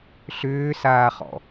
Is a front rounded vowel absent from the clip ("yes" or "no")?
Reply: no